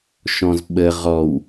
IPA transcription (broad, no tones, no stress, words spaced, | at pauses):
ʃɔ̃zɓə ʁɔw